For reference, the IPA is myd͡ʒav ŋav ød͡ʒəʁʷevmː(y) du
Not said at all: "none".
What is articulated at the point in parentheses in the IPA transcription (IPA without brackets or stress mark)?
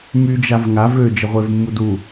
u